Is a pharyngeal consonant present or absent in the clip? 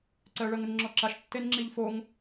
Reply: absent